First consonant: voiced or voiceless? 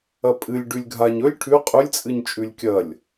voiceless